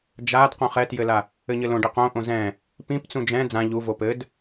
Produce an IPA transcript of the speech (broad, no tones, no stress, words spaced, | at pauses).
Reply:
d͡ʒad qõχɛtjɘla | ɘɲɘlõɖi qõʔõ zɛ̃ | pĩpt͡sũ d͡ʒɛ̃ d͡zã ʎuvo pɘd